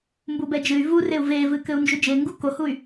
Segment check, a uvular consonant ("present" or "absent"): absent